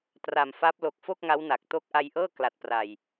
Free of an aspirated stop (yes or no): yes